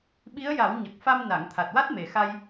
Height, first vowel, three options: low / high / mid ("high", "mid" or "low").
high